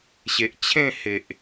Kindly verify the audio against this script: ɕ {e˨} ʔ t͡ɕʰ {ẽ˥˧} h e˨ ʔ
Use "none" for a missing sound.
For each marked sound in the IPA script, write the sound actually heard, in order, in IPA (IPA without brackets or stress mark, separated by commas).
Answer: e˨, ẽ˥˧